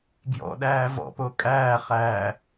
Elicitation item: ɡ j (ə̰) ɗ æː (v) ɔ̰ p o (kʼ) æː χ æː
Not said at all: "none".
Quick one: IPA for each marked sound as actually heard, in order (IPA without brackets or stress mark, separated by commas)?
ɔ̰, v, kʼ